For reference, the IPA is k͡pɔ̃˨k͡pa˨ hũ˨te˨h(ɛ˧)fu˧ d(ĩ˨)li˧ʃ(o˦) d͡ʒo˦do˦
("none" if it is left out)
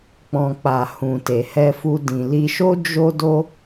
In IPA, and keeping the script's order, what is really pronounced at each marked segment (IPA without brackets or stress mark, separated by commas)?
ɛ˧, ĩ˨, o˦